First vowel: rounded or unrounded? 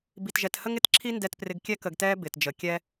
unrounded